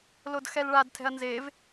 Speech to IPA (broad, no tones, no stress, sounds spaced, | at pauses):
l o d x ɛ l ɭ a d tʰ ɛ̤ ɐ̯ n z e v